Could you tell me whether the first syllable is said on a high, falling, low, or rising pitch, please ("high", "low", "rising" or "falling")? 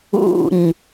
falling